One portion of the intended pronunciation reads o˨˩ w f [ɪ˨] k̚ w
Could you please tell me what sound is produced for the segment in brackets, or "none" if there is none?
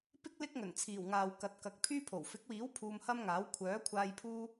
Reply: ɪ˨˥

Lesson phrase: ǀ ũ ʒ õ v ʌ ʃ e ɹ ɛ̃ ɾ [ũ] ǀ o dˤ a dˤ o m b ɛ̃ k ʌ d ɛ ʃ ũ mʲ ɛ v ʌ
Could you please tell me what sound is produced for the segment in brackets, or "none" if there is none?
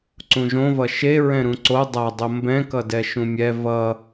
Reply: ũ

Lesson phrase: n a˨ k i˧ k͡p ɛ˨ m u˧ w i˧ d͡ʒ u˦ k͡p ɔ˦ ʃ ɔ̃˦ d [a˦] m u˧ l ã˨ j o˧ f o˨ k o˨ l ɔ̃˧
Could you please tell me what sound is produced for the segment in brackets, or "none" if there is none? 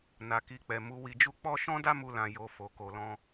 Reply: a˦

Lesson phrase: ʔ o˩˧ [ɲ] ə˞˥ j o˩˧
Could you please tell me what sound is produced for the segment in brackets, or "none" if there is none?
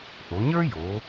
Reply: ɲ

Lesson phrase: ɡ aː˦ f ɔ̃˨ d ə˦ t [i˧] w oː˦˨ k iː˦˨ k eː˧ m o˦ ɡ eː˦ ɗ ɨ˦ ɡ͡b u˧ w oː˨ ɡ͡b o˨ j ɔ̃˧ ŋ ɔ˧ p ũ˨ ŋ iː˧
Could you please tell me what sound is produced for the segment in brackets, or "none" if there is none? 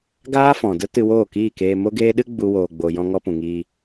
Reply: ɨ˧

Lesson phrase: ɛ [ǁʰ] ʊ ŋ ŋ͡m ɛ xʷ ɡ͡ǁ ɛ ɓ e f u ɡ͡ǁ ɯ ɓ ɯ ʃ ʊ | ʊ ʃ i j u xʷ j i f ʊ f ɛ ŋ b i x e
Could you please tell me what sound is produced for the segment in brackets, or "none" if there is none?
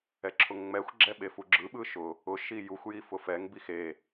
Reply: ǁʰ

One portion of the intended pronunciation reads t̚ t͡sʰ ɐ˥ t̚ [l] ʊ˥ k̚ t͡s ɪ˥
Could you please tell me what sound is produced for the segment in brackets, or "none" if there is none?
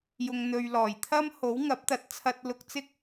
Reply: l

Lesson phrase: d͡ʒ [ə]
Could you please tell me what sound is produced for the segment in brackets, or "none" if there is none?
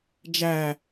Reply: æ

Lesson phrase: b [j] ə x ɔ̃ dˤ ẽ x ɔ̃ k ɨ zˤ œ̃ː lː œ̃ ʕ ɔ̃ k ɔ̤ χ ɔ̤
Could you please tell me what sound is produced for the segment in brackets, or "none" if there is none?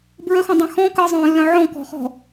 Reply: ɹ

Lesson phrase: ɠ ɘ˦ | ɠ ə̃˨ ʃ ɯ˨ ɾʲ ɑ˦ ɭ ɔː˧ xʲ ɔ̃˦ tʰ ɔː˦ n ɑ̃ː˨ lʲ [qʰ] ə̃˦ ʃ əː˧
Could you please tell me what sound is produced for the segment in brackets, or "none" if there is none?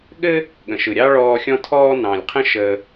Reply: qʰ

